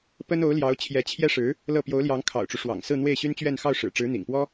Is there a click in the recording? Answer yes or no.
no